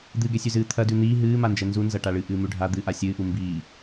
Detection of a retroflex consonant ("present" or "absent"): present